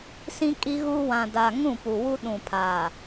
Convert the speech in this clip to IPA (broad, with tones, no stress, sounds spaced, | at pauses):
s ĩ˦ kʼ i˦ ɣ u˦ w ã˨ d a˨ ŋ ũ˦˨ p u˨ w u˦ ɗ ũ˨ pʰ a˨